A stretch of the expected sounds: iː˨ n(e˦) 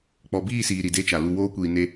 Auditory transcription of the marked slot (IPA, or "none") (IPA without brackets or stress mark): e˦